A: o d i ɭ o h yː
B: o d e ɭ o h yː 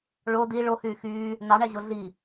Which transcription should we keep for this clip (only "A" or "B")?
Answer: A